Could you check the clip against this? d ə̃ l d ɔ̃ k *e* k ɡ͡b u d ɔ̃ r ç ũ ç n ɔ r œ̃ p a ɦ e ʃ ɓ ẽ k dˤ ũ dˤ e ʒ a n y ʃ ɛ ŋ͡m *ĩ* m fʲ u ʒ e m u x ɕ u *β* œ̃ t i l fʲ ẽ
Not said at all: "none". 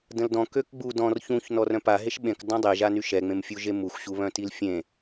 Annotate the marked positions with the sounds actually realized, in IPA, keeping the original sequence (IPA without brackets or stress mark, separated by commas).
ø, ẽ, β